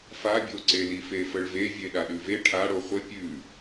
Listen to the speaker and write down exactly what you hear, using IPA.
f a bʲ o ǀ e l i f e f ə ɭ v e vʲ e ɗ a ɗ ʉ v e ʈʰ a ɽ o χʷ ə pʲ ʉ

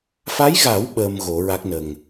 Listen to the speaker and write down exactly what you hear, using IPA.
f a˧˥ j ɣ a˨˩˦ w ɓ əː˧ m ɣ o˨˩˦ ɹ a˦˥ k̚ n ə˨˩ ŋ

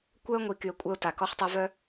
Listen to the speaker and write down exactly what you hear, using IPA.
kʷ œ˦ ə̯ ŋʷ i˨ k y˨ ə̯ kʷʼ œ˧ ʊ̯ t a˨ k ɔ˧ χ tˤ e˧ v œ˦

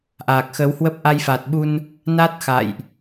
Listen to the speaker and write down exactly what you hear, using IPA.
ʔ aː˨˩ k̚ x ə˨˦ w h w ə˦˥ p̚ ʔ a˧ j f a˨˩ t̚ ɓ u˧ n | n a˦˥ t̚ x a̰˧˨ j ʔ

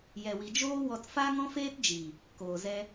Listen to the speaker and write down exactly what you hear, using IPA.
j ɛ˨ w i˨ d͡ʒ oː˦ w ɔ˧ t f a˦ ŋ ɔ̃˦ f eː˦ t d͡ʒ i˨ | k oː˨ z ɛ˧

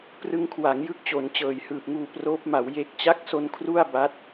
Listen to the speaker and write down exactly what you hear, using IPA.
p r ɯ˧ ŋ kʰ w a˩˦ ŋ j ɯ˦˥ k̚ t͡ɕ o˩˦ n t͡ɕ ɤː˨˩ j h ɯː˨˩ p̚ ŋ uː˧ p r oː˦˥ p̚ m a˩˦ w j e˦˥ k̚ t͡ɕ a˦˥ k̚ s o˧ n kʰ r u˥˩ a̯ b a˦˥ t̚

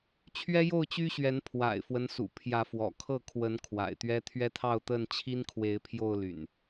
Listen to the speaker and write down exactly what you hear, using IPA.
t͡ɕʰ ɥ ɛ˦ j o˥˨ ʊ̯ t͡ɕ y˦ ɕ ɥ ɛ˨˦ n pʰ w a̰˨˩ ɪ̯ f w ə˦ n s ṵ˨˩ pʰ j ä˨˦ f w ɔ̰˨˩ kʰ ɤ˥˨ kʰ w ə˨˦ n kʰ w a̰˨˩ ɪ̯ t̪ ɥ ɛ˦ t̪ʰ ɥ ɛ˦ t̪ʰ ɑ˥˨ ʊ̯ t̪ ə˥˨ n t͡ɕʰ i˦ n kʰ w e˨˦ ɪ̯ pʰ j o˥˨ ʊ̯ l y̰˨˩ n

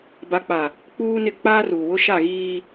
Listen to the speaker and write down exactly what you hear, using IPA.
b a˨ k͡p a˨ | k͡p uː˦ n ɪ˦˨ k͡p aː˦ r uː˨ w ʊ˦ ʃ a˦˨ ɣ iː˦

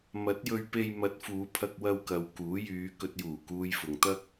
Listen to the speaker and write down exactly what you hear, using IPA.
m ɐ˨˥ t̚ j ɵ˧ ɥ p e˧ j m ɐ˨˥ t̚ f uː˨˧ pʰ ɐ˧ k̚ w ɐ˧ w k ɐ˨ w k uː˨˥ j yː˨˧ k ɵ˨ t̚ j uː˨˩ k uː˨ j f ʊ˨ ŋ t̪ ɐ˥ k̚

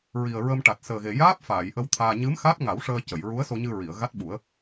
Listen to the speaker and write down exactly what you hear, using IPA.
ɹ i˨˩ ə̯ ɹ ə˧ m ʈ a˨˩ t̚ s əː˨˩ ɣ e˨˩ j aː˦˥ p̚ f aː˨˩˨ j ʔ ə˧ w t̪ʰ aː˧ ɲ ɨ˧˥ m x aː˦˥ t̚ ŋ a˨˩˦ w ʂ əː˧ c ə˨˩˨ j ɹ u˧˥ ə̯ s o˧ ɲ ɨ˧ ɹ i˨˩˨ ə̯ ɣ a˦˥ t̚ ɓ u˨˩˦ ə̯

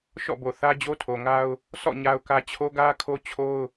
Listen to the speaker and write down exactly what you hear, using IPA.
ʃ ɔ̰˦˨ b o˨ θ ä˦ d͡ʑ o˦ tʰ o˨ ŋ a˦ ʊ̯ | sʰ ɔ̰˦˨ ɲ a˦ ʊ̯ k ä˦ t͡ɕʰ o˦ ɡ ä˦ kʰ o˦ t͡ɕʰ o˦ ʊ̯

